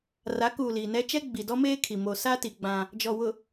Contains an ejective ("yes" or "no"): no